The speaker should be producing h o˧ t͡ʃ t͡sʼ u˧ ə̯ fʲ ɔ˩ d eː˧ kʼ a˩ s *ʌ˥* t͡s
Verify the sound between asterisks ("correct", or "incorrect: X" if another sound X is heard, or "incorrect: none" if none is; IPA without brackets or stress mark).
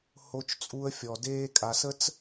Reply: incorrect: ə˥